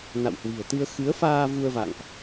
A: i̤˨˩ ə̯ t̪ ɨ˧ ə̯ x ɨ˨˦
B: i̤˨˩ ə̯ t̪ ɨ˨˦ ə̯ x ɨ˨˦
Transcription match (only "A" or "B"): A